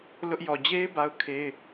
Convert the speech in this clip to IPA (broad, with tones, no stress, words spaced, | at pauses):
lʊ˦ʔ jɔ˨d͡ʑe˦ɪ̯ ba˦ʊ̯kʰe˦ɪ̯